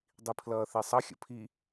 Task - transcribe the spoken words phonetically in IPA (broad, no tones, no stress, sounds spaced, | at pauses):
dˤ i pʰ l ʌː θ e sˤ ʌ xʲ ə̰ pʰ i